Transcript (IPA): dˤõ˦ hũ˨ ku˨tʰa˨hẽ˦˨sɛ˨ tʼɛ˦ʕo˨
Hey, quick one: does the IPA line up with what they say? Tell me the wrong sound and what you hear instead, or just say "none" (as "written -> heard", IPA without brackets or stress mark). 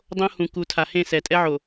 none